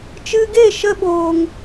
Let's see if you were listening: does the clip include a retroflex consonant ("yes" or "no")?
no